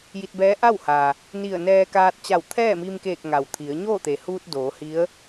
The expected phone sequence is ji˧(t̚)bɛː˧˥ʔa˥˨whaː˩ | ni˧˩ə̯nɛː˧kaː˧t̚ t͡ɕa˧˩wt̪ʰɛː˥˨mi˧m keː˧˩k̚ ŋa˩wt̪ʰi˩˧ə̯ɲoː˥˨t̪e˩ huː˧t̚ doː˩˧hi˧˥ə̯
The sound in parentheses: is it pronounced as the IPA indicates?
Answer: yes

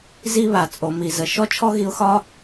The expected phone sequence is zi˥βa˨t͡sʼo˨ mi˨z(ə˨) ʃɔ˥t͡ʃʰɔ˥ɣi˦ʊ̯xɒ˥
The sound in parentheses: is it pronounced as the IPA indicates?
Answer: yes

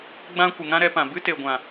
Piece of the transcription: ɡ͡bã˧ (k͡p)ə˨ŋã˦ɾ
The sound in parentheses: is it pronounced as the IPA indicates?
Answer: no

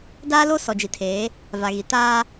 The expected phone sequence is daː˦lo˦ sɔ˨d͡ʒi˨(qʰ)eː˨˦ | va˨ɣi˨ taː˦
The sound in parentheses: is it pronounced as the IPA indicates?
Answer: no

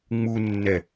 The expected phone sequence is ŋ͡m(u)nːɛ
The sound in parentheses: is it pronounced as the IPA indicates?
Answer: yes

